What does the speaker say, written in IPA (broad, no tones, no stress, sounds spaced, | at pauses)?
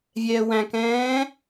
vʲ ɛː w æ̃ k ɛ̃ː